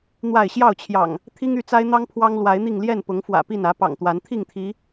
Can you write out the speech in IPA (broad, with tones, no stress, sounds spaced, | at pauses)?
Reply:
n̪ w a˥˨ ɪ̯ ɕ j ɑ˥˨ ʊ̯ t͡ɕʰ j ɑ̰˨˩ ŋ | t̪ʰ i˦ ŋ y˥˨ t͡s a˦ ɪ̯ n̪ ɑ˦ ŋ pʰ w ɑ˦ ŋ l w a˨˦ ɪ̯ n̪ i˥˨ ŋ l j ɛ˥˨ n p ʊ˨˦ ŋ f w ä̰˨˩ p i˥˨ n ä˨˦ p ɑ̰˨˩ ŋ t̪ w a˨˦ n t̪ʰ i˥˨ ŋ t̪ʰ i˨˦